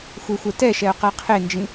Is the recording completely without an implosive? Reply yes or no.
yes